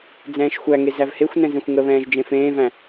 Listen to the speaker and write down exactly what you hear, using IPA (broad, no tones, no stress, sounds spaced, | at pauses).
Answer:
d͡z ɛ̃ː ʃ xʷ æ ŋ e z æ v h e xʷ n ɛ̃ z ɛ̃ xʷ ŋ ə β ɛ̃ː ʒ d͡ʒ ẽ f ẽː v æ̃